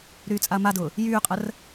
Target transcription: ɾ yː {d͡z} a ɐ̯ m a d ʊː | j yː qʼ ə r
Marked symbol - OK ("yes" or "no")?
no